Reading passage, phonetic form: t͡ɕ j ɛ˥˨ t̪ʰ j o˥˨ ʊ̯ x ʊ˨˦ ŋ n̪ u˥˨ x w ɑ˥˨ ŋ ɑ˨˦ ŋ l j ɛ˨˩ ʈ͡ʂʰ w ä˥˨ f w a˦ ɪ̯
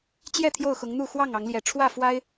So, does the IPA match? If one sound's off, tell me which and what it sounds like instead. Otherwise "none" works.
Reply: none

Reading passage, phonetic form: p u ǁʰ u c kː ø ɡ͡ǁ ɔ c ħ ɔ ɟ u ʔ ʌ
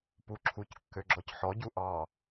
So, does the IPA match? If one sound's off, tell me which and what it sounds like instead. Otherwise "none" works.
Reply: ʌ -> ɑ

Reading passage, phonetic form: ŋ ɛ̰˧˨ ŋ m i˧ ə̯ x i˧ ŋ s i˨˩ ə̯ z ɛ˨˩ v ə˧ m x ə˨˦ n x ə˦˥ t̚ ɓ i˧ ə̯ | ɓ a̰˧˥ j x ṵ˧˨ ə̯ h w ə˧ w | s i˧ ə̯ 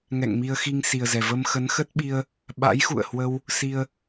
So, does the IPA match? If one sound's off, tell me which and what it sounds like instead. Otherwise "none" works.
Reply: none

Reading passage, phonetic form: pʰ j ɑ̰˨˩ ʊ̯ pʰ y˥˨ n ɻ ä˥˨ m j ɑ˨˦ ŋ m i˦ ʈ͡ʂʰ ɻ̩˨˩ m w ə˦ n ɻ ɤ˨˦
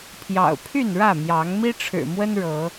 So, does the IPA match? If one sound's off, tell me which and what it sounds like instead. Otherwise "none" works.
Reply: none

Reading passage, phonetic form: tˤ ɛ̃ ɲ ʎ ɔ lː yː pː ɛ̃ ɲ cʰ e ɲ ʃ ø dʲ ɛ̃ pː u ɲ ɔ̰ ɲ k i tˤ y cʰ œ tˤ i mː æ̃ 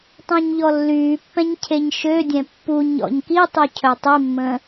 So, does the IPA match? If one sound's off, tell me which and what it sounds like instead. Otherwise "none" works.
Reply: æ̃ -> ə̃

